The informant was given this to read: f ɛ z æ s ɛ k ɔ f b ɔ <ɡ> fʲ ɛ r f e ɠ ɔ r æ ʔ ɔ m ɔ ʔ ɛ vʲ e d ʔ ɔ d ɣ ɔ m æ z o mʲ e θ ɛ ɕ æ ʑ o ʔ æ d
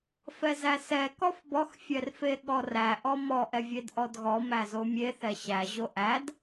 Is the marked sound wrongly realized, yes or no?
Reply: yes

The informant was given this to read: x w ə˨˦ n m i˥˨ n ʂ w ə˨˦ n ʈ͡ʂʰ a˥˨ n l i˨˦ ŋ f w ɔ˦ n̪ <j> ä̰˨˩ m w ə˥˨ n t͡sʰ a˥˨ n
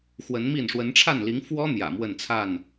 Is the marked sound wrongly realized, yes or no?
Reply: no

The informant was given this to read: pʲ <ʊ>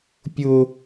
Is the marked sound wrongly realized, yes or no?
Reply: no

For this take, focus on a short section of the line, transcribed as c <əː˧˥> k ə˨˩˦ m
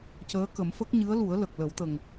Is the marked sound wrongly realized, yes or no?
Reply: no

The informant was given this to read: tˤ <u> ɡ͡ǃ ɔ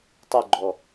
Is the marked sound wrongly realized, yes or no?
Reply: no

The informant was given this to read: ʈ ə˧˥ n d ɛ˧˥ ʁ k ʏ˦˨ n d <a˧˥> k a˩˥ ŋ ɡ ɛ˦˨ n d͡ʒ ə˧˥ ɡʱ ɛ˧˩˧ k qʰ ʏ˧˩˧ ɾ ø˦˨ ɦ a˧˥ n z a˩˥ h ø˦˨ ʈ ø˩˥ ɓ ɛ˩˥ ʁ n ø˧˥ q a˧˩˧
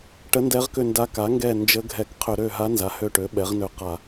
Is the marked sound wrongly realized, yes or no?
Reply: no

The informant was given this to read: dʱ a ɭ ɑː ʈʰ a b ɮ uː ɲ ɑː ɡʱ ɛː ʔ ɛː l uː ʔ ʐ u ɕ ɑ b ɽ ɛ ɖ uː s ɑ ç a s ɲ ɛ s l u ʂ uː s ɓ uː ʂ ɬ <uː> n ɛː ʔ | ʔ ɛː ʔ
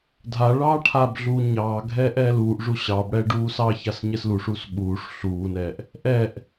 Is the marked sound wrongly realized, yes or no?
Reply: no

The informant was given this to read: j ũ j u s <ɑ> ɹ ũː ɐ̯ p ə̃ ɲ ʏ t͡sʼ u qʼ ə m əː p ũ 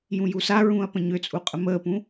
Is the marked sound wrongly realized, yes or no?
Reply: yes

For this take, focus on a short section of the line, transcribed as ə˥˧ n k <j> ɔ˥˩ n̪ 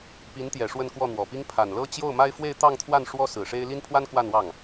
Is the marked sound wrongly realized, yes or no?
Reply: yes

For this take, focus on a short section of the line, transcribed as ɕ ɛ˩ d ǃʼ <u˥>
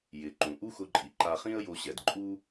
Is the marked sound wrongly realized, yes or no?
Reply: no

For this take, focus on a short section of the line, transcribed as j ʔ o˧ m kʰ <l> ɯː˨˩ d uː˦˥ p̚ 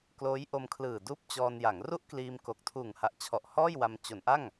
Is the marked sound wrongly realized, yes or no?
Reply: no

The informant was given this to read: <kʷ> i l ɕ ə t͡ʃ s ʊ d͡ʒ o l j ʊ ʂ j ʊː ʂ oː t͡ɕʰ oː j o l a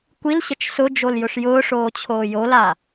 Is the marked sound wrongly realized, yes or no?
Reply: no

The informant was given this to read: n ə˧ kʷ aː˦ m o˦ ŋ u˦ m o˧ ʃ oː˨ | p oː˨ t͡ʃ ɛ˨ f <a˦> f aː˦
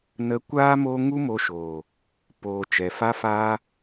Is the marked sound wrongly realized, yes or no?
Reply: no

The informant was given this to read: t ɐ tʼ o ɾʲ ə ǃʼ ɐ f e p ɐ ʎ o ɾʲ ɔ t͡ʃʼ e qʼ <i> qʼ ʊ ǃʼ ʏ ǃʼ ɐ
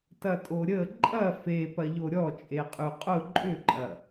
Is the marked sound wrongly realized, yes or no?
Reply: yes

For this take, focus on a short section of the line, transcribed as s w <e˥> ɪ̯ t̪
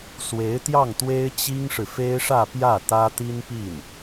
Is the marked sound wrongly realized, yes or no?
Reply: yes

